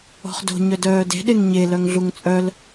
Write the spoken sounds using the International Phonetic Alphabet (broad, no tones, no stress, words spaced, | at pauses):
ɔ̤χdo̤ ɲœdœːde̤ ɗeŋɲe lœŋɮuŋt͡sʼœl